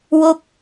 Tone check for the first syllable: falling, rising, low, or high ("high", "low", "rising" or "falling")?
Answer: falling